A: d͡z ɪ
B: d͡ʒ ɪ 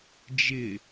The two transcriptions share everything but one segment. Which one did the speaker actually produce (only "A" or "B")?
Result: B